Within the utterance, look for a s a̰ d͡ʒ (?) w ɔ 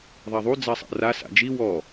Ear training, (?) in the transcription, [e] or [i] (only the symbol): i